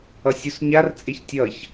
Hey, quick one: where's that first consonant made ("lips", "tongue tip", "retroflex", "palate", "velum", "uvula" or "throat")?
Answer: tongue tip